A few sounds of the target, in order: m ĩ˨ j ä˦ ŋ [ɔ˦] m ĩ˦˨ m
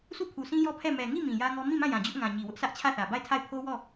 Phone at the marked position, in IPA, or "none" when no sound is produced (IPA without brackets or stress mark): ɔ˦